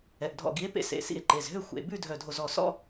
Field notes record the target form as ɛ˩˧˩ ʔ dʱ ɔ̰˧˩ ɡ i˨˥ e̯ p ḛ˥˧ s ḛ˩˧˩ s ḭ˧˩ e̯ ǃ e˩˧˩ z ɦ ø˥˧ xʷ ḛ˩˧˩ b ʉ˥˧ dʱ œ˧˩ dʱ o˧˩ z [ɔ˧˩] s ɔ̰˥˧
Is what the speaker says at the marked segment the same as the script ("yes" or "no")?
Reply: yes